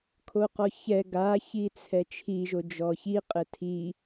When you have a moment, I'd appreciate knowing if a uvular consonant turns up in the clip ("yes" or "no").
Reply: yes